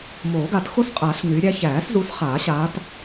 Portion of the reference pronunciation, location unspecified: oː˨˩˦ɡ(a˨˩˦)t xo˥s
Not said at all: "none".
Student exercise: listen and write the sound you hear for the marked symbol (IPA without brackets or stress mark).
a˨˩˦